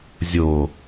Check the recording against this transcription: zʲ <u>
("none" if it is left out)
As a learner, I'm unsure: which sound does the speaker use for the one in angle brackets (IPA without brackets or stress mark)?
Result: o